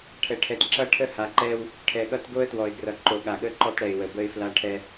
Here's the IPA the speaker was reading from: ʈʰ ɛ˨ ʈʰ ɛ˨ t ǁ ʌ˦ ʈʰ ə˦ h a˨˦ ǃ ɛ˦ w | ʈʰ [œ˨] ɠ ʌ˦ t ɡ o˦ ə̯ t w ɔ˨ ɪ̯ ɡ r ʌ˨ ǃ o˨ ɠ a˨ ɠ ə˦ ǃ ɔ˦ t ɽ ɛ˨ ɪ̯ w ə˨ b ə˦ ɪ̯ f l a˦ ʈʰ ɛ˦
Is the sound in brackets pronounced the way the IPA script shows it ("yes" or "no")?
no